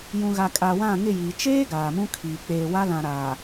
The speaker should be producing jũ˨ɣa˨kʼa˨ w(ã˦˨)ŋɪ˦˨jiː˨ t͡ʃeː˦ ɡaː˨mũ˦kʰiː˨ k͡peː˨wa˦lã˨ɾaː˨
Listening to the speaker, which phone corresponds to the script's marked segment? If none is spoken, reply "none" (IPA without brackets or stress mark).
ã˦˨